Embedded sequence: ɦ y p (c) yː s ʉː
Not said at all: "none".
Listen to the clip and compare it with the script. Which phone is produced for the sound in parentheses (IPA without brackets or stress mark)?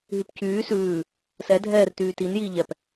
c